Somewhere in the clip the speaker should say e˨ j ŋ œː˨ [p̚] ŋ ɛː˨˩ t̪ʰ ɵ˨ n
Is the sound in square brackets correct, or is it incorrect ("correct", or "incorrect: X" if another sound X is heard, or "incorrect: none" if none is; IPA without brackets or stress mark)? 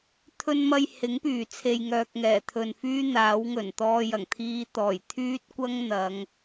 incorrect: k̚